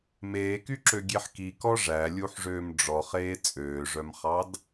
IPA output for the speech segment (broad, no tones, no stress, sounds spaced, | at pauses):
m eː k y ǁ ø ɡʲ e ħ k i k ɔ ʐ æ lʲ u ħ ʐ øː m ɖ͡ʐ ɔ χ eː t͡sʼ øː ʐ œ m χ ɑ d